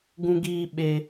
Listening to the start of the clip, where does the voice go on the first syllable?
high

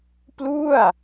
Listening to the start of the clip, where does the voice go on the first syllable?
falling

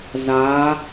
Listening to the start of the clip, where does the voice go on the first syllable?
rising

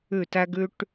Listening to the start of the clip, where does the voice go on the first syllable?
falling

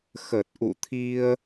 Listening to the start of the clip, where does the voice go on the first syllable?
low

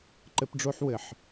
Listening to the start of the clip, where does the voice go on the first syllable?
high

